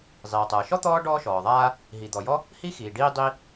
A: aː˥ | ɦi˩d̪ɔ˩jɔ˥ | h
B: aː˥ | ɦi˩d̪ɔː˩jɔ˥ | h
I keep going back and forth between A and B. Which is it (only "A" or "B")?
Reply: A